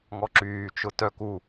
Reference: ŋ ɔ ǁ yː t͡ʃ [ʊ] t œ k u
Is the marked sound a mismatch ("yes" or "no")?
no